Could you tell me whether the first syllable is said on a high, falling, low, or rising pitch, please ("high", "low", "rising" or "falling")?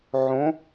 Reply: rising